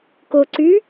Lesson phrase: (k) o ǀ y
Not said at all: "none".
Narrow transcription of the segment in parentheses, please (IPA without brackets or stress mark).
k